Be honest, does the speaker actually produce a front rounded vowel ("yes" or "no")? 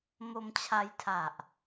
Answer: no